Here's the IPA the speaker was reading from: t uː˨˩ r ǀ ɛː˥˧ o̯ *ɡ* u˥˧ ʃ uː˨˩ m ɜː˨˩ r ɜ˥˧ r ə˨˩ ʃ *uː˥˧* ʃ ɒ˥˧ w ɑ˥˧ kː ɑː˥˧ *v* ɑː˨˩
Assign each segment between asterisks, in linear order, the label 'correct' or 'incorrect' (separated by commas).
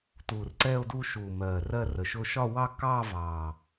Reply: incorrect, incorrect, correct